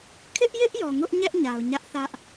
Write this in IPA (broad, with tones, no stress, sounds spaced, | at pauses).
kʰ ɪ˦ ʔ j ɪ˦ ʔ j ɔ˨ ŋ ʊ˦ ʔ ɲ ɛ˦ ʔ ɲ a˨ ʊ̯ ɲ ä˦ ʔ θ ä˦ ʔ